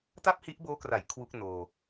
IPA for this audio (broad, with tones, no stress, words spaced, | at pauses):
ta˥˩p̚hi˦˥ʔboː˦˥kra˩˦j kʰwu˦˥k̚noː˧